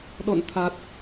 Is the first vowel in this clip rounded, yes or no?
yes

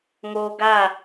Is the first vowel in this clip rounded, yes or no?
yes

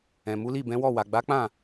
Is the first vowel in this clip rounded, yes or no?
no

